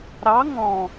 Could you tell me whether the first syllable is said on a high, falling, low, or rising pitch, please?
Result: rising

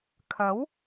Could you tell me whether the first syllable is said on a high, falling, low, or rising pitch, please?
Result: rising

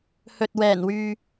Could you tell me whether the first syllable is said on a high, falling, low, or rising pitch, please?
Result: low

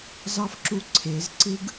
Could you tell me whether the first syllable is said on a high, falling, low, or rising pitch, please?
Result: high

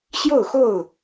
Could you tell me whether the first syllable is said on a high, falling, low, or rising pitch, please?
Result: falling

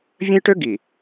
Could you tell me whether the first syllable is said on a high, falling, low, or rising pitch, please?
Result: high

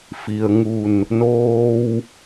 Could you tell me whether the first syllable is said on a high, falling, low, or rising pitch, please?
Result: low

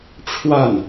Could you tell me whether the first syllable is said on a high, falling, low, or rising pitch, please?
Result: falling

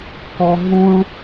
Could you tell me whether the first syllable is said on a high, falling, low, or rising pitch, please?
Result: high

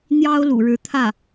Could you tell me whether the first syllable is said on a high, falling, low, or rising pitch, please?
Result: high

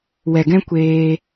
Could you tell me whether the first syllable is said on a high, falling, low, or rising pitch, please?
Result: low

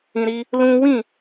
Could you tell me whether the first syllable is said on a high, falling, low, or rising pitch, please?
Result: low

